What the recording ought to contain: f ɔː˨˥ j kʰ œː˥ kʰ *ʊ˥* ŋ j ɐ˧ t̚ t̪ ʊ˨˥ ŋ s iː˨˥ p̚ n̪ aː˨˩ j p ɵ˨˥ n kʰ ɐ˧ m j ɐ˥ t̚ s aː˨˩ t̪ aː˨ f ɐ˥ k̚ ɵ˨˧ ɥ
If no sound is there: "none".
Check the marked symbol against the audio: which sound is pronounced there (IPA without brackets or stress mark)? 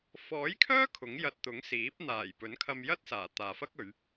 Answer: ʊ˨˥